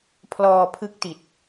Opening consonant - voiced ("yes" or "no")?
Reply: no